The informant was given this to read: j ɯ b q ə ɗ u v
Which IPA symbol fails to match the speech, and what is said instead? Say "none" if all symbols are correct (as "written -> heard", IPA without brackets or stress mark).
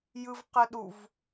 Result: b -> v